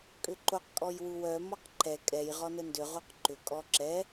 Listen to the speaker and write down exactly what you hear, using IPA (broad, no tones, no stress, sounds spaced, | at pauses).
kʼ ʏ ǃ o q kʼ ɔ j w u w œ m ɔ q ǃ ɛ kʼ ɛ j ʁ ɔ n ə n d ʏ ʁ o q ǃ ʏ kʼ ɔ ǁ ɛ